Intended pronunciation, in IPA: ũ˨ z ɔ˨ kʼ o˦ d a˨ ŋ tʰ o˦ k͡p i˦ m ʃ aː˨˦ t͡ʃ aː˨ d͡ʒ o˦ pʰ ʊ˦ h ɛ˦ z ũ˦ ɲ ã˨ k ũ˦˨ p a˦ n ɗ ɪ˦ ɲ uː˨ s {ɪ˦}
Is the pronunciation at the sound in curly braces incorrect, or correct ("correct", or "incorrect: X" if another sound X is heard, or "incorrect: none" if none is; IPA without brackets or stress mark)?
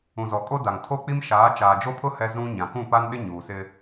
correct